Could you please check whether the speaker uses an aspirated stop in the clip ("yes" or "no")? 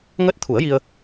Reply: yes